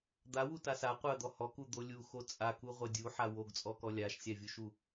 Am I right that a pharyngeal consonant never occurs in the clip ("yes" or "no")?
no